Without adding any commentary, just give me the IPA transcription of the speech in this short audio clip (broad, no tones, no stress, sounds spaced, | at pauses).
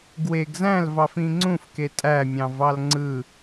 ɡ w e ɡ z æ̃ l v ɑ f ĩ ŋ͡ǀ ũ f k e tʼ æ mʲ ɑ̃ v ɑ l ŋ͡ǀ ɯ